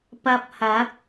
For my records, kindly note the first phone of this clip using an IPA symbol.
p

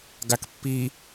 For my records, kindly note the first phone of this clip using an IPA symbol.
ɡ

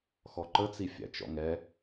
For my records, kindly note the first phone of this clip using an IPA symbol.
x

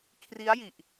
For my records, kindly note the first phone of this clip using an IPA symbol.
kʰ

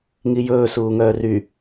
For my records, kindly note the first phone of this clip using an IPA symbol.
ŋ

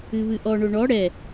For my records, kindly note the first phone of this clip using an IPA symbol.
ɨ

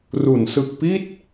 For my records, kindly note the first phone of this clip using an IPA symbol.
r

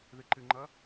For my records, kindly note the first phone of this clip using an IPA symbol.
ð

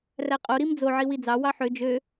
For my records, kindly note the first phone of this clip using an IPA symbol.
r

